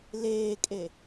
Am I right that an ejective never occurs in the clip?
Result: no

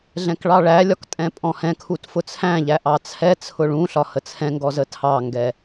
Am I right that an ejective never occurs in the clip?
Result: no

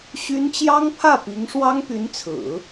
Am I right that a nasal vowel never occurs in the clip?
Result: yes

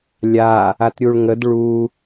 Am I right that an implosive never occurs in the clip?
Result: yes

